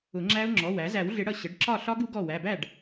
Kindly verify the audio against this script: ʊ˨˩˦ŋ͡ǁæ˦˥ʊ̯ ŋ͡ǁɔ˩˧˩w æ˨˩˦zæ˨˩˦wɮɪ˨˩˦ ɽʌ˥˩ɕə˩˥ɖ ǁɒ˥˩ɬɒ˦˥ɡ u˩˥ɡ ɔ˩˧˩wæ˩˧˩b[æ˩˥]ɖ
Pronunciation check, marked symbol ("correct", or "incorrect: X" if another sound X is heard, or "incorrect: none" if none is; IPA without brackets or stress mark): incorrect: æ˥˩